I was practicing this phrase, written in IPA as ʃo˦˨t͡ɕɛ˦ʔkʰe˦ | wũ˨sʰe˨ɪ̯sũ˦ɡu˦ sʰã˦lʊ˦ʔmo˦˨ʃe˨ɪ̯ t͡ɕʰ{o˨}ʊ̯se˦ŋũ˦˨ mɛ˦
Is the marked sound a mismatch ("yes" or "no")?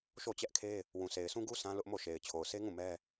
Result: no